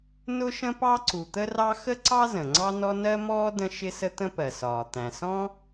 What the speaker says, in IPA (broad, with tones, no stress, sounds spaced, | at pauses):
n ʊ˥ ʃ ə̃˥ p ɑ˥ ǀ u˩ t̪ ə˥ r ɑ˥ x ə˥ ǀ ɑ˥ z ə̃˩ ŋ͡ǀ ɑ˥ n ɔ˥ n ɜ˥ m ɔː˥ d ə̃˥ ʃ ɪ˥ s ə˥ t̪ ə̃˥ p ɜ˩ s ɒː˩ t̪ æ̃˩ s ɔ̃˥